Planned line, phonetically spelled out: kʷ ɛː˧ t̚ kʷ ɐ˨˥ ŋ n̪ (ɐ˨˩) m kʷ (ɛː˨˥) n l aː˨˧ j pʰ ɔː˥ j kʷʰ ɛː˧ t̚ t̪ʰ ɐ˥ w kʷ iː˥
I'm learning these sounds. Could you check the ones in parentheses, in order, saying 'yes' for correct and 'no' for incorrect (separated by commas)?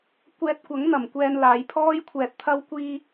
yes, no